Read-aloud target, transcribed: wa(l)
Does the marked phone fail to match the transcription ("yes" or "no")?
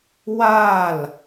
no